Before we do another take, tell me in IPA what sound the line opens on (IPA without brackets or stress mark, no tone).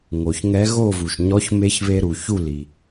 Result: ŋ